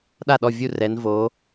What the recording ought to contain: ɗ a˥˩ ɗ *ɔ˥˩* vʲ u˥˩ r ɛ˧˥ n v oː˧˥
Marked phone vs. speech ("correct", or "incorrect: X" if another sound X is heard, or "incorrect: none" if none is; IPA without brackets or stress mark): correct